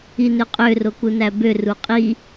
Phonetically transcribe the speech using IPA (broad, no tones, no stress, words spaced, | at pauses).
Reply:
inøqʼø rokunæbø ruqʼi